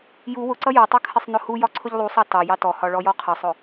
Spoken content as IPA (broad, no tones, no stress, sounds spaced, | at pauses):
j u w ʊ ǀ ʌ j ɔ tˤ ʌ kʰ ɪ sˤ n ʊ h u j ɒ ǀʰ ʊ ʎ lˠ u sˤ ɑ t ɑ j ɑ t ɔ h ɒ ɭ ɔ j ɔ qʰ ə sˤ ʊ